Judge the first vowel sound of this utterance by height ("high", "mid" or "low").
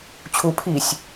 high